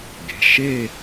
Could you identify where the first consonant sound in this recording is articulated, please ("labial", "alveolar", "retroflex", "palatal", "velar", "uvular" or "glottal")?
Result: velar